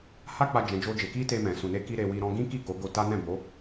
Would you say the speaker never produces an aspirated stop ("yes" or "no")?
yes